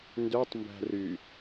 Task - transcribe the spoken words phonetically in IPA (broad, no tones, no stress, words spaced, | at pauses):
ndøtˤ mbæ̤ry